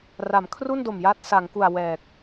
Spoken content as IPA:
r a˩˦ m kʰ r u˥˩ n d o˨˩ m j a˦˥ t̚ s a˩˦ ŋ k u˨˩ a̯ w ɛː˨˩ k̚

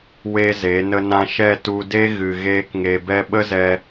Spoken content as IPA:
w e˦ z e˨˦ n ə˧ n ã˧ ʃ ɛ˦˨ t u˧ d e˦ ɣ ɨ˨ ɣ eː˦ k ŋ e˧ b ɛ˧ ɓ ə˦ z ɛ˧

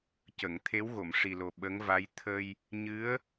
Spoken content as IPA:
c ə˨˩˨ ŋ t̪ʰ e˧˥ w ɣ o˨˩˨ m ʂ i˨˩ l o˨˩ ɓ ə˧˥ ŋ v a˧˥ j t̪ʰ ə˧ j | ɲ ɨ˧˥ ə̯

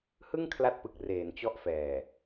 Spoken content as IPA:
h ɯ˥˩ ŋ kʰ l a˦˥ t̚ p ɯ˨˩ k̚ r eː˩˦ n t͡ɕ ɔ˦˥ ʔ f ɛː˨˩

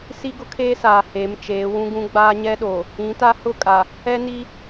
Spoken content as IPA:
s i˦ ɡ ʊ˦ kʰ eː˦ s aː˨ h e˨˦ m t͡ʃ eː˨˦ w ũ˦ ɡ ũ˦ ɡ͡b aː˦ ɲ ɛ˦ ɗ oː˨ | ĩ˨˦ t a˦ h ʊ˦˨ kʼ a˨ | ɛ˦ n iː˦

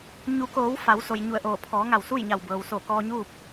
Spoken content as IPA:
ɲ u˩˧ k oː˩˧ w f a˩˧ w s o˩ j ɲ u˧˩ ə̯ ʔ oː˧˩ pʰ ɔː˩˧ ŋ a˧˩ w s u˥˨ j ɲ a˧˩ w b ɤː˩ w s o˧˩ k ɔː˧ ɲ uː˥˨ p̚

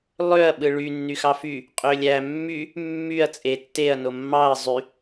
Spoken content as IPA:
lˠ ø ɐ̯ ɓ ɯ ɭ y nː y x ɑ f y | qʼ ø lʲ æ mː y | mː y ɐ̯ t͡sʼ e tː e ɐ̯ n o mː ɑ ɐ̯ zˤ y

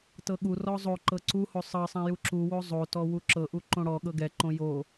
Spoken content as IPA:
t ɤ ɠ u r ɔ zˤ o ǃ ɤ ǀ u h o sˤ ɤ sˤ ɛ̃ j u ǁ u w o zˤ o t ɔ w u ǁ ɤ ʔ u ǃ õ ɽ ɔ ɠ ɤ ɡ ɛ ǃ õ j o

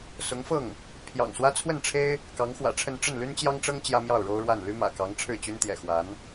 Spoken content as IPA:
s ʊ˧˥ ŋ f ɤ˥˩ ŋ | pʰ j ɑ̰˨˩ ŋ s w ä˥ t͡sʰ w ə˥˩ n ʈ͡ʂʰ e˥ ɪ̯ | k ɑ˧˥ ŋ x w ä̰˨˩ ʈ͡ʂʰ ə˥˧ n ʈ͡ʂ ə˥˩ n l y˥ n t͡ɕ j ɑ˥ ŋ ʈ͡ʂ ɤ˥ ŋ t͡ɕ j ä˥ m j ɑ˥˩ ʊ̯ ɻ o˥ ʊ̯ ɻ w a˥˩ n l y˥ m ä̰˨˩ k ɑ˧˥ ŋ ʈ͡ʂʰ ɻ̩˥˩ t͡ɕ y˥ n t̪ j ɛ̰˨˩ x w a˧˥ n

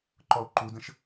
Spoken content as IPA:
ǃ ɔ o̯ ǃ u d ə̃ ʃ

